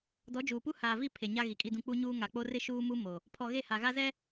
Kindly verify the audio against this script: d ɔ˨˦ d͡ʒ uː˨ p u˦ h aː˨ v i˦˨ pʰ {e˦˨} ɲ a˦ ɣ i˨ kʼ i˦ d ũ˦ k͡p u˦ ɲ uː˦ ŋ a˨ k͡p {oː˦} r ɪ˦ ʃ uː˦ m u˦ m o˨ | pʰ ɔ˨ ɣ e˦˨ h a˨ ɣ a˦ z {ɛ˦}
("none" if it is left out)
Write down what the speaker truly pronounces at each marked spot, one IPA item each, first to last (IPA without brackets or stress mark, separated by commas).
e˨, o˦, ɛ˦